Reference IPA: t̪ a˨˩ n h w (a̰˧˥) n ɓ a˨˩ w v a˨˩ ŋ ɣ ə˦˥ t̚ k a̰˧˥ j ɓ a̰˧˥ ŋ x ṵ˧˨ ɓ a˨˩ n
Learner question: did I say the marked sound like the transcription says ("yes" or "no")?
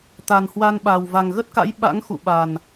no